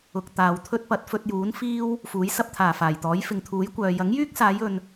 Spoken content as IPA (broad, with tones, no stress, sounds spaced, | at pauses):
ʊ˨ k̚ t̪ aː˨ w t̪ʰ ɵ˥ t̚ p ɐ˨˥ t̚ f ɵ˧ t̚ j uː˨˥ n f iː˥ w | f uː˨˥ j s ɐ˥ p̚ t̪ʰ aː˨˩ f aː˨˩ j t̪ ɔː˨˥ j f ɪ˨ ŋ t̪ʰ uː˨˥ j kʷ œː˨ j ɐ˨˥ ŋ j yː˥ k̚ s aː˨˧ j ɵ˨ n